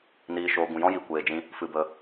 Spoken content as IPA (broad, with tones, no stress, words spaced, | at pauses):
niː˨ʃoː˨ ɡũ˨jɔ̃˦ji˨ kʷeː˨d͡ʒĩ˧ | fɨ˨bə˨